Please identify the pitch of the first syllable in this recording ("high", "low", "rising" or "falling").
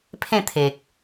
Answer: falling